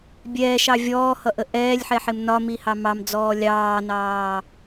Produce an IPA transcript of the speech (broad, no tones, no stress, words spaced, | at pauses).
bʲɛːʃɑ vʲɔːhʌʔə ʔɛːlʲħɛħɪm nɒmihɑ mɑmd͡zɔː lʲɑːnɑː